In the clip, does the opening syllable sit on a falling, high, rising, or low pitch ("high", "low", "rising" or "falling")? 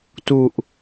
low